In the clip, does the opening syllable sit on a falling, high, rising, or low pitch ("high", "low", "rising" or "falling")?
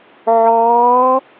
rising